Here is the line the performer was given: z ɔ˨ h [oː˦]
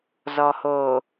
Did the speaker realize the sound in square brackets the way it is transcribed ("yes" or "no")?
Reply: no